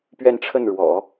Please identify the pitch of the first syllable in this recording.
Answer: falling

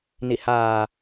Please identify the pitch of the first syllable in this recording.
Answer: low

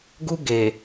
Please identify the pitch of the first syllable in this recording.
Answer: high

